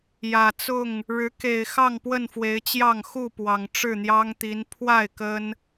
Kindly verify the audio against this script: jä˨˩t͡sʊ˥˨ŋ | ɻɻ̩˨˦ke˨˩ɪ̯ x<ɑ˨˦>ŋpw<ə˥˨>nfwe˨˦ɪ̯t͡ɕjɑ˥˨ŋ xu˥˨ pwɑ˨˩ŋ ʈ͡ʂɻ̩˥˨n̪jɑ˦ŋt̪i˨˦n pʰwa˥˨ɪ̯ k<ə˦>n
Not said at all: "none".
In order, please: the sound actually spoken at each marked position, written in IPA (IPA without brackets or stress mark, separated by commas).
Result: ɑ˥˨, ə˥˨, ə˦